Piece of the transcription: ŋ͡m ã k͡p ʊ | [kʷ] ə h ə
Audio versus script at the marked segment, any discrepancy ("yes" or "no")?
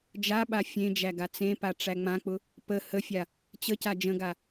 yes